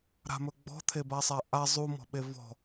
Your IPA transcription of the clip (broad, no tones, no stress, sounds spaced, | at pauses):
ɾ a̤ m ɵ ɡ͡b ɔ̤ t̪ʰ e b a sˤ a ʔ a zˤ u m ɔ̤ ɓ e v ɔ̤